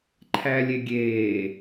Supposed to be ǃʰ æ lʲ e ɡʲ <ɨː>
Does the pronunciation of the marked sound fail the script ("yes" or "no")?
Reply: yes